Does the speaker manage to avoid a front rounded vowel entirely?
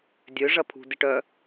no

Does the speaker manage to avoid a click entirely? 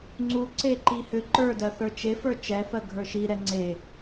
no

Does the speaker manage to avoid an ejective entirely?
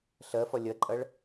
no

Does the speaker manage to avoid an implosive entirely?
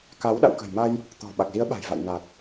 no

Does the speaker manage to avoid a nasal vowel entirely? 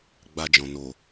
no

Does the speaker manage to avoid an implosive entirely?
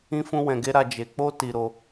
yes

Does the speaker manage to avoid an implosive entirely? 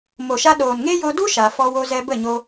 no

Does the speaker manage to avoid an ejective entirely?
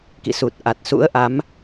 yes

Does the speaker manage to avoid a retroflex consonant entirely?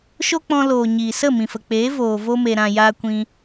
yes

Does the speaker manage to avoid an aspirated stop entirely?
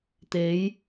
yes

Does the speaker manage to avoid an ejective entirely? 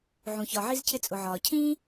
no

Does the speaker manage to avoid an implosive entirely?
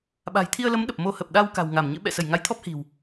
no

